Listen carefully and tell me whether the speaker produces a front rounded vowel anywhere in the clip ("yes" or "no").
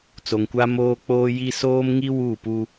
no